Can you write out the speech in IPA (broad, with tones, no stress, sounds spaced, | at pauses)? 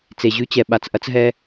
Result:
t͡s e˨ ʑ ʉ˦ t͡ɕ ɛ˨ ɓ a˨ t͡s ʔ ɐ˦ t͡s ɦ ɛ˦